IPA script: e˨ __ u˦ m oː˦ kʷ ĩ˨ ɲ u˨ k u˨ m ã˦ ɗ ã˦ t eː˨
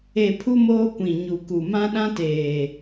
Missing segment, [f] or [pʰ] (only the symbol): pʰ